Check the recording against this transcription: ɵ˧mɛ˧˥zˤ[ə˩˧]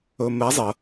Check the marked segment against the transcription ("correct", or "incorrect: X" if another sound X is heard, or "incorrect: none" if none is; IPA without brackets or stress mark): correct